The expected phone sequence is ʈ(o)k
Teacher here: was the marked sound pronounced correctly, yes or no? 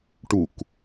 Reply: no